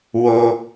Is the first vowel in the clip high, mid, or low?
mid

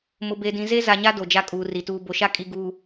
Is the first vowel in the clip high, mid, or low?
high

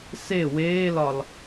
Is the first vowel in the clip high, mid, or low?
mid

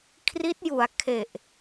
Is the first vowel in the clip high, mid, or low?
high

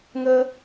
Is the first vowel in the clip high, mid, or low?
mid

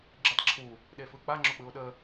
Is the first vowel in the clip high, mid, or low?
high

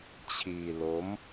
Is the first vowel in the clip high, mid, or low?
high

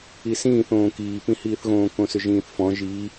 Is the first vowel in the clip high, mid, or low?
high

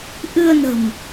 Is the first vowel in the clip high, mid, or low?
high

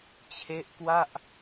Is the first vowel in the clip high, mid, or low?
mid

